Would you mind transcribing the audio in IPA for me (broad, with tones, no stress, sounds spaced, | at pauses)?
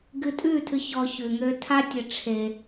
ɡ ɨ˧ tʼ ʉ˦˨ tʰ ɨ˧ ç ɔ˧ ç ʉ˧ ŋ ø˦ tʰ a˦ tʲ ə˧ ʈ͡ʂʰ e˧